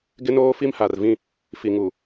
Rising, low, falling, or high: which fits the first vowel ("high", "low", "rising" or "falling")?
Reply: high